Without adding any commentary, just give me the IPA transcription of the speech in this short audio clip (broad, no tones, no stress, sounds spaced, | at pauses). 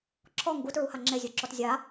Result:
ǁʰ ɔ ŋ ɡ u t ɹ u h a ŋ͡ǁ e zʲ u ǁ ɔ t zʲ a